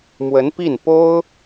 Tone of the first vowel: rising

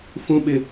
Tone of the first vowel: high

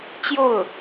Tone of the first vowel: falling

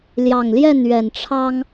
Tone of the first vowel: low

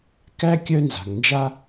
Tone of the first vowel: high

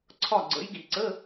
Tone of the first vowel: falling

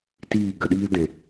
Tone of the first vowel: falling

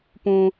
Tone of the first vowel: high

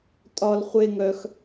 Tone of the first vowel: high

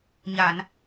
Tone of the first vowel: low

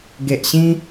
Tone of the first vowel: low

